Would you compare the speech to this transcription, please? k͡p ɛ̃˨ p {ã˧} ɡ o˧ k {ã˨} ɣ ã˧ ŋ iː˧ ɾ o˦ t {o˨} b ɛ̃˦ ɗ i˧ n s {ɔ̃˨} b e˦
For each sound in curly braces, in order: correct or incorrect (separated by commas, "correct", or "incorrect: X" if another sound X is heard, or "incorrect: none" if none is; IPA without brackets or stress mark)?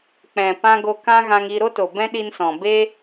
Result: correct, incorrect: ã˦, correct, correct